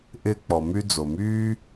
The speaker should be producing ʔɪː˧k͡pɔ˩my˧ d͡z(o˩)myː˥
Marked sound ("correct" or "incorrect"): correct